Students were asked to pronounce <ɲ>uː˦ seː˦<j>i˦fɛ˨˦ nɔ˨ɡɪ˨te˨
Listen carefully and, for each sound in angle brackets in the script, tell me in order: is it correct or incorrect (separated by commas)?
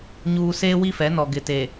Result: correct, incorrect